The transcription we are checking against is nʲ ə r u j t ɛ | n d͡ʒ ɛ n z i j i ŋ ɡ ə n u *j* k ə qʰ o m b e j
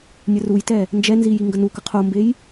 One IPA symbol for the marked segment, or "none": none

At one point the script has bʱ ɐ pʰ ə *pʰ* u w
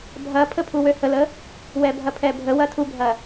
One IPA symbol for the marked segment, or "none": pʰ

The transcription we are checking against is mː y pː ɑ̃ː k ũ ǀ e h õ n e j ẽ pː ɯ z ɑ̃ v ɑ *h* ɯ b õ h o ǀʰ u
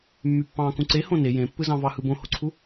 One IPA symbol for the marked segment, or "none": h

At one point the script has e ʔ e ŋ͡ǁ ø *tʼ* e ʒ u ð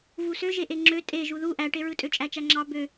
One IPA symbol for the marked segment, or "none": tʼ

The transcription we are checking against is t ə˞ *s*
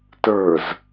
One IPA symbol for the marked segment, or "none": z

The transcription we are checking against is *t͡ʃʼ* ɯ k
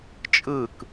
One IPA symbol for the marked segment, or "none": t͡ʃʼ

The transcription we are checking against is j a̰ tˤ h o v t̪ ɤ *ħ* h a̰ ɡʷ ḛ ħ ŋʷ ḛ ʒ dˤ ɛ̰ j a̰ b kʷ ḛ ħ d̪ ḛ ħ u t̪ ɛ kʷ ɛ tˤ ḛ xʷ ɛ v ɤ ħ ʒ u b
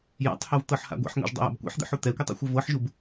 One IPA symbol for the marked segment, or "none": ħ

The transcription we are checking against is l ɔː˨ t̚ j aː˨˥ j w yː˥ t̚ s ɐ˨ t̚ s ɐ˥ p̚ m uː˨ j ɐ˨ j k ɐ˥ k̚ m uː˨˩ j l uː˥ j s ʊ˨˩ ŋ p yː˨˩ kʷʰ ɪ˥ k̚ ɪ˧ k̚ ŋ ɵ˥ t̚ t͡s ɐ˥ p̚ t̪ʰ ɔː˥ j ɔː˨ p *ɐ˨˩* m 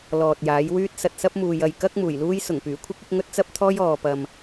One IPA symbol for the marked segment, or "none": ɐ˨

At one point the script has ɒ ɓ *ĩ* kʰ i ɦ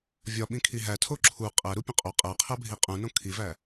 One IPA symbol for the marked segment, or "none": ĩ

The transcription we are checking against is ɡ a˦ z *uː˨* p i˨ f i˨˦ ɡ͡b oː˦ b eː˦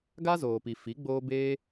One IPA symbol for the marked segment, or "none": oː˨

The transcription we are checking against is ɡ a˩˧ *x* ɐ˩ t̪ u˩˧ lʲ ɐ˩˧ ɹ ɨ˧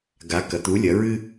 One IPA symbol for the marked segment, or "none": k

